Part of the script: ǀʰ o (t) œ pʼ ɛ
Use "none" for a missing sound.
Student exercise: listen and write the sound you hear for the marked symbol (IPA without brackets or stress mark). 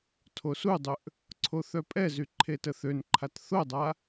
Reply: θ